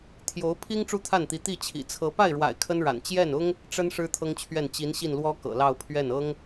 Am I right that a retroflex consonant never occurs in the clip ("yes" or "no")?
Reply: no